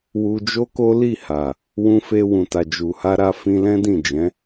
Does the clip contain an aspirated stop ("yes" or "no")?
no